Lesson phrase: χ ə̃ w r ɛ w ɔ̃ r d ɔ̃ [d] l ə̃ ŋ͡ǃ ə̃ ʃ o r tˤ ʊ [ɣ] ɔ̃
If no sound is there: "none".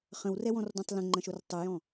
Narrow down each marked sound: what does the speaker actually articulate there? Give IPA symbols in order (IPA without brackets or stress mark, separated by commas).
tˤ, j